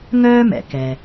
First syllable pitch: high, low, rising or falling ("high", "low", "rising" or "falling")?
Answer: high